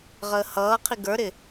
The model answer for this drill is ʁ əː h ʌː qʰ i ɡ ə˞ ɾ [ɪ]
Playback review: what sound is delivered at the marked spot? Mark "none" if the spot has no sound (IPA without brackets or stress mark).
ɪ